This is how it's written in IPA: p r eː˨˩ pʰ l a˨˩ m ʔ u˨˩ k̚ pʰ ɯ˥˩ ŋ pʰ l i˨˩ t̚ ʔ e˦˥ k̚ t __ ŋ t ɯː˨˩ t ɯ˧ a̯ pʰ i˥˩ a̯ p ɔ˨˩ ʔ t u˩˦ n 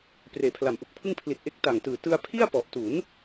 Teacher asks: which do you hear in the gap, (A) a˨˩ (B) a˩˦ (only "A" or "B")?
A